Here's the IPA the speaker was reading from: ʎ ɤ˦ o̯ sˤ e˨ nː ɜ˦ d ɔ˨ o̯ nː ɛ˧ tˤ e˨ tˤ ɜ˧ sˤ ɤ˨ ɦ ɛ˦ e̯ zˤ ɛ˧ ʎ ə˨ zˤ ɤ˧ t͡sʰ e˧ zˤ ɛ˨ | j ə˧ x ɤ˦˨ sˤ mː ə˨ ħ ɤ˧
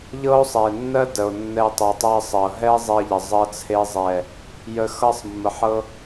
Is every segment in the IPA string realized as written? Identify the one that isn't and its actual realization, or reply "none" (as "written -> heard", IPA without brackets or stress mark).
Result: ɔ˨ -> ə˨